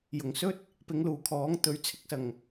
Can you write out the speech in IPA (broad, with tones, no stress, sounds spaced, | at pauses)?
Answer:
j ʊ˨˩ ŋ s ɵ˥ t̚ | p ɪ˨˧ ŋ l uː˨˩ kʰ ɔː˨˥ ŋ t̪ ɵ˨˥ ɥ t͡sʰ ɪ˨˥ k̚ s ɐ˨˩ ŋ